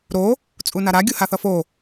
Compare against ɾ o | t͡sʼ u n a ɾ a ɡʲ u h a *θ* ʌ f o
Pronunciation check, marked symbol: correct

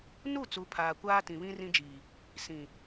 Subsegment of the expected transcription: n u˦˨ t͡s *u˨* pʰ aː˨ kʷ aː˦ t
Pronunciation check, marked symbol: incorrect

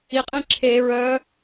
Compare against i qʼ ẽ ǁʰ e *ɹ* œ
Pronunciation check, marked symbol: correct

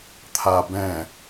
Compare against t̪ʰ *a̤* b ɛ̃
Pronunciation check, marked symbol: incorrect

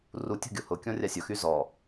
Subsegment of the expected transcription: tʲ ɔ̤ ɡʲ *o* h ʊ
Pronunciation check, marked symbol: correct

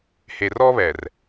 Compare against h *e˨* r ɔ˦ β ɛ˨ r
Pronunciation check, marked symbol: correct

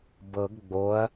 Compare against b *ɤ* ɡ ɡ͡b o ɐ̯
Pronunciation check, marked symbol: correct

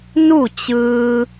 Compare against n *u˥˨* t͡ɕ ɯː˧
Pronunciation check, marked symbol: correct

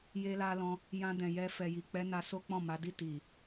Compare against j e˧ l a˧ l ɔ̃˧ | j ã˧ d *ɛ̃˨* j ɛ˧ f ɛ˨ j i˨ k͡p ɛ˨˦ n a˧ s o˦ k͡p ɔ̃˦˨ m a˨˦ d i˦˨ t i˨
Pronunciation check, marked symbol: correct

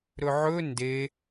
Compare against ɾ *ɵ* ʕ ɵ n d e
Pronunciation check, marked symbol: correct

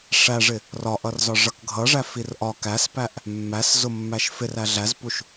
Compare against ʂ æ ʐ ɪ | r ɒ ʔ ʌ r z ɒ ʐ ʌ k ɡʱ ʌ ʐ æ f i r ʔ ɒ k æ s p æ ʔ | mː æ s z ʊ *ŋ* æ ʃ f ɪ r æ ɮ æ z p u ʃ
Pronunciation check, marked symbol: incorrect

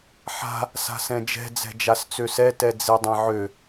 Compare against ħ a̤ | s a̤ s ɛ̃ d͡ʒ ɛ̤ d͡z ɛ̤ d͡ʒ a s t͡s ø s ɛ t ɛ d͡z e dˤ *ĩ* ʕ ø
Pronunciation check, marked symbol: incorrect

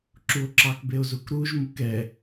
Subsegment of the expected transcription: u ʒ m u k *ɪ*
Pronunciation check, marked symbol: incorrect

